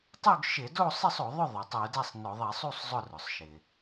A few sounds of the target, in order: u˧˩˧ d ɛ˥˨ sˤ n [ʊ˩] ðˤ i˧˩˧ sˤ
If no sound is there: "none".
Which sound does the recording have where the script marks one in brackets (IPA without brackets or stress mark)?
ʊ˧˩˧